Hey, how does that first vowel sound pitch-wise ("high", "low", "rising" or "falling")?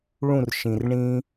falling